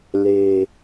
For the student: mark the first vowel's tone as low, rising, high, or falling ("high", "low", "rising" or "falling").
low